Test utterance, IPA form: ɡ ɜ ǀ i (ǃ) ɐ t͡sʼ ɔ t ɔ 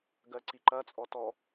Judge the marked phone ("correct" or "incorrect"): correct